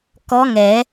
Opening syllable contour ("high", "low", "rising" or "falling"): rising